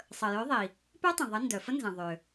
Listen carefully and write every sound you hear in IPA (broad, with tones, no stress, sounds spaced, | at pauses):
sˤ ə˩ j ø˨˥ ðˤ i˩ | p œ˦˥ tˤ ə̃˩ ðˤ ə˨˥ n d œ˩ f ə˦˥ n z ə̃˩ ðˤ ø˩